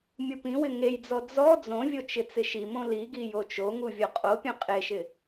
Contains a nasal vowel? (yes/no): yes